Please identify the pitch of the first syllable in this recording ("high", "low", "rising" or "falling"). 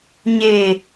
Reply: low